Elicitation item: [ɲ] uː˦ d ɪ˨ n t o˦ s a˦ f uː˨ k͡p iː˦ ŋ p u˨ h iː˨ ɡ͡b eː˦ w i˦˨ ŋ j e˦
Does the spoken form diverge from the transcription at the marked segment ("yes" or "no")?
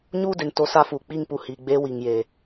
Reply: no